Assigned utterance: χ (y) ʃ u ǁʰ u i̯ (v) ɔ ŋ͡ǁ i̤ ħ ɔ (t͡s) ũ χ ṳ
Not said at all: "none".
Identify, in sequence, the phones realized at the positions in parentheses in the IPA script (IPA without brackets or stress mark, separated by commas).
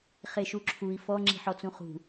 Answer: e, f, t͡s